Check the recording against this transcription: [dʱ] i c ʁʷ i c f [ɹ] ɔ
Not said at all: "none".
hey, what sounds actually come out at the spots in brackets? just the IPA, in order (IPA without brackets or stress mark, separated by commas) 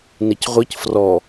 n, r